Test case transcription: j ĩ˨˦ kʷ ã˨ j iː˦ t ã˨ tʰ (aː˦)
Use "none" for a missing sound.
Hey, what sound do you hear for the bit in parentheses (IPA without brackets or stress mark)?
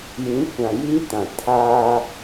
aː˦